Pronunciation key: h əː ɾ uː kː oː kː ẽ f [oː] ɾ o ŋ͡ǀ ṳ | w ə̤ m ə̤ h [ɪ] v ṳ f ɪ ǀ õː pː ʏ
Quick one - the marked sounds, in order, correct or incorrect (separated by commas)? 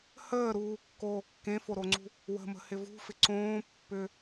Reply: incorrect, correct